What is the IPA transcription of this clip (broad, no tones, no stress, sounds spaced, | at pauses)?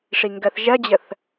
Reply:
ʂ i ŋ ɡ ɜ θ ʒ ɜ d͡ʑ ə θ